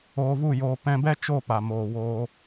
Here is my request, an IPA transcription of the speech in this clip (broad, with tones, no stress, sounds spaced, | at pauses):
oː˧ v u˦˨ j oː˧ p ɛ̃˧ b ɛ˦ t͡ʃ o˦˨ p a˨ m oː˨ w oː˧